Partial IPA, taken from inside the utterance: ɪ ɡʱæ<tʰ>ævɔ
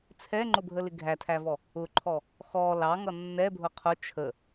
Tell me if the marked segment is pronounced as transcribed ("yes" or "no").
yes